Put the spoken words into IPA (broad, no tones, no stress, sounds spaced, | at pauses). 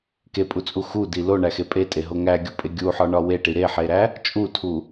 k e pʼ u t͡sʼ u x u d i l o ɳ æ x e pʼ e tʼ e ɦ o ŋ æ ɡʲ u pʼ e ɡʲ u ħ ɒ ɳ ɒ w e ʈ i ɾ e ħ e ɾ æ | t͡ʃʼ u tʰ u